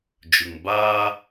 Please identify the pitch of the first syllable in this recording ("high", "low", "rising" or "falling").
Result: low